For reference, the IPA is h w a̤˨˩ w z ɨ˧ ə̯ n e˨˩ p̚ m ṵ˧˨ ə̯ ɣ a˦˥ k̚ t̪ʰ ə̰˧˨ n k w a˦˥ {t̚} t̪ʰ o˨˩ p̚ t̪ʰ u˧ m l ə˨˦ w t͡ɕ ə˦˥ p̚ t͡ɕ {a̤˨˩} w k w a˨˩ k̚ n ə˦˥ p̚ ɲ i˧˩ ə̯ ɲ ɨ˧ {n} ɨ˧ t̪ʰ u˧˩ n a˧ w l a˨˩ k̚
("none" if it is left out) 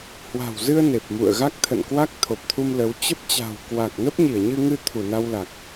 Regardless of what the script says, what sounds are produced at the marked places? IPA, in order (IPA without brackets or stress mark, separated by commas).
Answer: k̚, a̤˨˩, ŋ